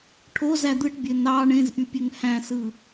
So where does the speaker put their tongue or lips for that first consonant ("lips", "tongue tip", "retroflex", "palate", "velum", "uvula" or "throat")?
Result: retroflex